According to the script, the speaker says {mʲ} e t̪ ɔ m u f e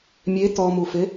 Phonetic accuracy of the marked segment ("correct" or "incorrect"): correct